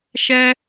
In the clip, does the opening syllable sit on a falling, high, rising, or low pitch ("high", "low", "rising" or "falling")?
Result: high